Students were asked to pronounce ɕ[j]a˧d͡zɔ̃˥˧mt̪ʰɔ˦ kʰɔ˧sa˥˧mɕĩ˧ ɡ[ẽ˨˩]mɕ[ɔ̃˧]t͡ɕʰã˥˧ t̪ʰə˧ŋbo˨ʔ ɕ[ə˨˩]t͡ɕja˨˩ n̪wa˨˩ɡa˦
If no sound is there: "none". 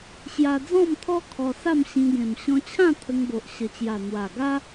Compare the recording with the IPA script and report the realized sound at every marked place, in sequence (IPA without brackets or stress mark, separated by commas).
j, ẽ˨˩, ɔ̃˧, ə˨˩